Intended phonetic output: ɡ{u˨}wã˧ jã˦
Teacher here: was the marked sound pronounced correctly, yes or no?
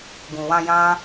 no